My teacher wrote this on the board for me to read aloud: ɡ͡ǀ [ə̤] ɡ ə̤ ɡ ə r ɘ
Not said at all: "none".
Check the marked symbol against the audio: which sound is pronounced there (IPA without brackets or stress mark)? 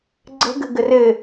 ə̤